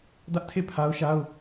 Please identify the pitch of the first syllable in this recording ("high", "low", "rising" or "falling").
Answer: high